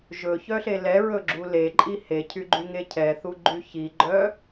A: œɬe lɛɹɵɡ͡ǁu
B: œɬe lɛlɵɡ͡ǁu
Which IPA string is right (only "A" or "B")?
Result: A